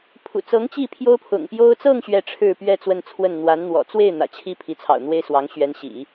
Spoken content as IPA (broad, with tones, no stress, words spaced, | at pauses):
pʰṵ˨˩t͡sɤ˧˥ŋ t͡ɕi˥˩ pʰjo˥ʊ̯pʰʊ̰˨˩ŋ pjo˥ʊ̯ t͡sɤ˥˧ŋ ɕɥɛ˥˧ʈ͡ʂʰɻ̩˥˧pɥɛ˥˧ t͡swə˥˧nt͡sʰwə˥˩n n̪wa˧˥nn̪wɔ̰˨˩ t͡swe˥˩ɪ̯ n̪ä̰˨˩t͡ɕʰi˥˩ pʰi˧˥t͡sʰɑ̰˨˩ʊ̯n̪we˥ɪ̯ swɑ˧˥ŋɕɥɛ˧˥nɕḭ˨˩˦